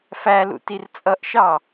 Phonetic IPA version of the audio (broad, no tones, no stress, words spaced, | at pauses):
fælṵ tirt͡sʼʌʔʃɑ